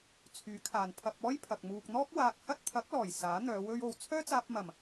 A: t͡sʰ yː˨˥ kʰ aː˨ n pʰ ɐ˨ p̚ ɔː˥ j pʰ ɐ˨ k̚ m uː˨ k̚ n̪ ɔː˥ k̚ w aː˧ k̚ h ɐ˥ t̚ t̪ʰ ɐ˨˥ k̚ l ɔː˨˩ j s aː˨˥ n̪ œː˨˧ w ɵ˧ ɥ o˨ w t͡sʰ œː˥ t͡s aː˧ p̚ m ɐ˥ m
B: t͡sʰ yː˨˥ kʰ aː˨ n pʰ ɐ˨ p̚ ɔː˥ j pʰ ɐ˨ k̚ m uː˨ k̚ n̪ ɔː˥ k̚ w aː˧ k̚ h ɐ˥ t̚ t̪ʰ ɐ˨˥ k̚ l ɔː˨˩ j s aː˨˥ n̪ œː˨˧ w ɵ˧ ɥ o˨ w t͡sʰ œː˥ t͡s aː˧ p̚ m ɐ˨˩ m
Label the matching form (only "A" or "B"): B